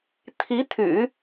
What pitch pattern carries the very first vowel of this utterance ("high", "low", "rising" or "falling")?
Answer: rising